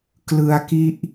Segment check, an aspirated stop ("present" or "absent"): absent